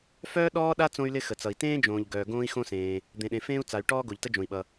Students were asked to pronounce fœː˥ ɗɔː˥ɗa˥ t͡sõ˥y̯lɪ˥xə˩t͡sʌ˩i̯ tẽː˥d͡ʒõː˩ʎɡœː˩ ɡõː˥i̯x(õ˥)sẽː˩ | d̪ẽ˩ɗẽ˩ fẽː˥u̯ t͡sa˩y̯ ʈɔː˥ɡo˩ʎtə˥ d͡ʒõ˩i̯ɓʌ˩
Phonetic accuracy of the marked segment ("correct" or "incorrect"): correct